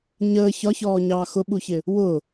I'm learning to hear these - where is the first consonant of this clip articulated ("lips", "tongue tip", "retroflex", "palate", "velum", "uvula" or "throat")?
palate